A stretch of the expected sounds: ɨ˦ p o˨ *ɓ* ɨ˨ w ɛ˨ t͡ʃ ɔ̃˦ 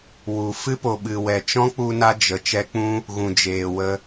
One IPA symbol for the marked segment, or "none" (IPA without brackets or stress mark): ɓ